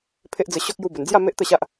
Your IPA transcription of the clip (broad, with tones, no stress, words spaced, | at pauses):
pʰe˦ʔd͡zə˧ɕɔ˦k̚ ju˧bə˨˩nd͡zja˥˧ me˦ʔt̪ə˥˧ɕa˦ʔ